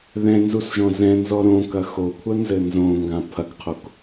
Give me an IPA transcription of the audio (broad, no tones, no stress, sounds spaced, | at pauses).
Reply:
ð ɛ̃ n z u s ʒ ɔ̃ z ɛ̃ n z ɔ ɾ õ k ɐ x o kʷʰ ɐ n z ɘ n z õ ŋ ɡ ã pʰ ɐ ɡ qʰ o k